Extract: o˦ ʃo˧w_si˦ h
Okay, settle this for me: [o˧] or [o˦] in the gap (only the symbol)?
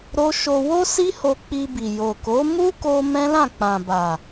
o˦